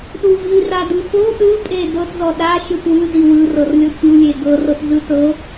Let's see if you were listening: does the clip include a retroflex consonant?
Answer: no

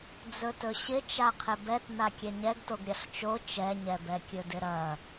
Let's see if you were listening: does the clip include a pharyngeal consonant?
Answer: no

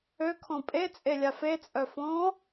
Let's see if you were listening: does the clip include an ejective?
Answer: yes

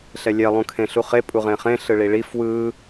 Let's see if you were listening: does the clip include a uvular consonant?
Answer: yes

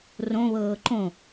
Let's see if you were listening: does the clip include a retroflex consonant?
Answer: no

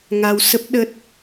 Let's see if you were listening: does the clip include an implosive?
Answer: yes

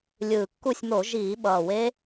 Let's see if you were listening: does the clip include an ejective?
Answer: no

